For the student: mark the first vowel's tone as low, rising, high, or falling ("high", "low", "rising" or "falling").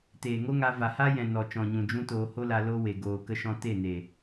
low